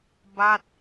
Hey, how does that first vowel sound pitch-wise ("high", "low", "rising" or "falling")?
falling